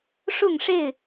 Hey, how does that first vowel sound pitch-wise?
falling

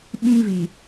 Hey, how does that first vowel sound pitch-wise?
high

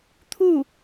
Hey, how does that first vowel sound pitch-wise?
falling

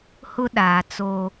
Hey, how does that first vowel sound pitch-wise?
high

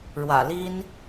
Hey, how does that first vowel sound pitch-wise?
low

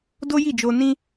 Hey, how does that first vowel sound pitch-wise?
high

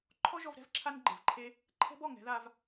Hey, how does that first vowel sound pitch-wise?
high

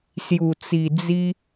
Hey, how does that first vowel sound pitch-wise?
low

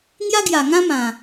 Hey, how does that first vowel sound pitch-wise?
high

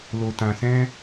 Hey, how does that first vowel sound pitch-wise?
low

